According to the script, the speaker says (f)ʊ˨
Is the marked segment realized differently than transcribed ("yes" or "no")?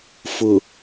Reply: no